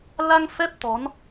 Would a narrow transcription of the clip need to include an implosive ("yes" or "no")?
no